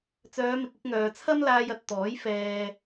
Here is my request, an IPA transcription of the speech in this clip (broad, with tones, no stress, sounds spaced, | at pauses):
t͡s œː˨˧ m ɪ˨ k̚ ɪ˧ k̚ ŋ œː˨ t͡sʰ ɐ˥ m l aː˧ j ɐ˨ t̚ t̪ ɔː˨˥ j f ɛː˨